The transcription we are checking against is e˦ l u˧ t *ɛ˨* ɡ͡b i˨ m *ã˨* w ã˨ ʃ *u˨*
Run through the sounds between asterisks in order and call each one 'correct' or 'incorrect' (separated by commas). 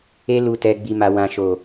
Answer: incorrect, incorrect, incorrect